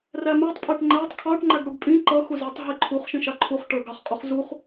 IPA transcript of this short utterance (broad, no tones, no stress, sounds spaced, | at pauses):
r æ m æ tˤ pʼ æ ʈ ŋ͡ǃ æ tˤ kʰ ɑ ʈ ŋ͡ǃ æ ɡ ɽ u ɡ pʼ ĩ ǃ ʌ x u z ə˞ tˤ ɦ i ǃʰ u χ ʃ ĩ ʃ ɑ ǃʰ u χ ʈ ə˞ ɡ ɑ χ qʼ u χ z u χ